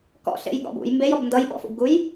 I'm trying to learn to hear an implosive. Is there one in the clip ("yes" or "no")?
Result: yes